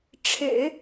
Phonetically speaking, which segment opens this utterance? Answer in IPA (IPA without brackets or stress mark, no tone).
ʈ͡ʂʰ